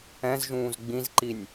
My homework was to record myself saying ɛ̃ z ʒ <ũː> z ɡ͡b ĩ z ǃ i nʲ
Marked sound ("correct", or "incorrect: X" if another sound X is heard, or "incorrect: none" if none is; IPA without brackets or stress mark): correct